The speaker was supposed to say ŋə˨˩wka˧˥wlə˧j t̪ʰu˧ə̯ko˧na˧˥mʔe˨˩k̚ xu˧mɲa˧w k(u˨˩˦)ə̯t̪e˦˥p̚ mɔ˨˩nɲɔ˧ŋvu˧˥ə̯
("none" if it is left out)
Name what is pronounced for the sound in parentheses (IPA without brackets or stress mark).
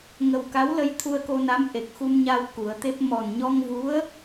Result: u˨˩˦